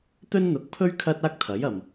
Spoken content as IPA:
t̪ ɵ˥ n n̪ ʊ˨˥ k̚ pʰ ɵ˥ ɥ kʰ ɐ˥ t̚ aː˥ k̚ t̪ʰ ɐ˨˥ j ɐ˨ m

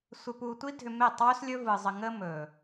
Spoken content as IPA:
sʷ ɪ˧ p u˧ tʷ i˦ dʱ ʏ˧ m e˦˨ tˤ w ɵ˦ s lʲ ɵ˦ v ɯ˧ zˤ ə˧ ŋ ə˦ m ɵ˨

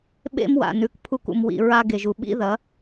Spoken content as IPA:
ɓ ḛ˦ m w a̰˨ n ʉ˨ k pʰ u˦ k ṵ˨ m w ḭ˨ ɹ a˦ ɡ e˨ ʒ u˨ ɓ ḭ˦ ð ɐ˨˦

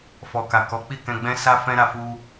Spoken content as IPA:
f ɔ˨ k a˨ k ɔ˨˦ k͡p i˦˨ k ɛ̃˧ ɡ͡b ɛ̃˦ s a˦ f ɛ̃˦ ɾ a˧ f u˦

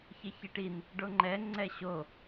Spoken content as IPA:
ç ɪ ç i ʈ i n | ɖ o ŋ͡ǃ ɛ ŋ͡ǀ ɛ ɕ o

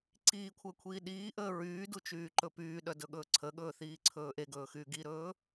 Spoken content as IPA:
ǀ iː kʷʰ əː kʷʰ iː ɗ iː ʔ əː ɹ yː d u t͡ʃ yː ǃ ɵ p yː ɗ œ d ɵ ɠ ɵː ǀʰ ə ɠ ɵː θ iː ǀʰ ɵː ʔ e ɡ ɵː x yː ɡ i ɾ ɵː

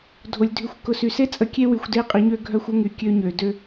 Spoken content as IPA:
dʱ o˨ lʲ dʱ y˨ xʷ k ʊ˨ s y˨ s e˦ t͡sʼ ə˨ kʲ e˦ w y˨ xʷ d e˦˨ qʼ i˨˦ ɲ ø˦ ɡʱ œ˦ xʷ ʊ˦ ŋ y˨ kʲ ø˦ ɲ ø˨ d ø˦

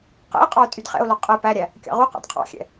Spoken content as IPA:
q ɛ̰ e̯ qʼ ɑ o̯ tʼ y d χ ɛ̰ o̯ l ɔ qʼ ɛ p æ ɾʲ æ | kʲ ɑ̰ ʁ u q ɑ̰ d qʰ ɑ̰ xʲ ɛ̰

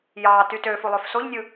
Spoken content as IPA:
j ɑ t y t ø f u lˠ ø f s o ʎ nʲ ɯ

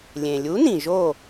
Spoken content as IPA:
lʲ ẽ˩ lʲ u˨˥ n ĩ˩ ʒ o˧˩

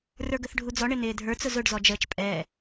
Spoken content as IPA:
r ə˞ ɡ ə θ ɖʱ u d͡z ɔ ɳ ɪ n ɪː dʱ ə˞ t͡s ʊ z ʊ ɖ z ɔ d͡ʒ əː t͡ʃ pʼ ɛ

